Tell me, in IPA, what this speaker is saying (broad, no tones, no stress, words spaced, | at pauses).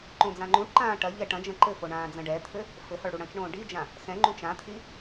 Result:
ǃõd͡zãŋ͡ǃũʈǃãː ʈɐʎɛ ʈɐ̃d͡ʒɐ̃ ǃɘfo ɳãːd͡zɐ̃ɖɛt̪ʰɘ | fɘhɔɭ ɽuɽɐ̃t͡ʃɳõː ɖid͡ʒã | xɛ̃ŋ͡ǃũ t͡ʃãt̪ʰi